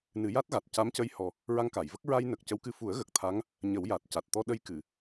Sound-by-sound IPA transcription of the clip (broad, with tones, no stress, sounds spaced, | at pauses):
n ɨ˨˩˦ j a˦˥ t̚ ɣ a˨˩ t̚ c a˧˥ m c ə˧ j h ɔ˨˩ | ɹ a˧ ŋ k a˨˩˨ j v ə˦˥ k̚ ɹ a˧ j n ə˨˩ k̚ c ə˧˥ w k ɨ˧ f u˨˩˦ ə̯ ɣ ə˨˩ k̚ t̪ʰ a˧˥ ŋ | ɲ ə˨˩˦ w j a˨˩ t̚ c a˨˩ t̚ t̪ ɔ˧ ɗ ə˧ j k ɨ˨˩˨